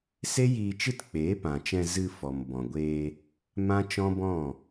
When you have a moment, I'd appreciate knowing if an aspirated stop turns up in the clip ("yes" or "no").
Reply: no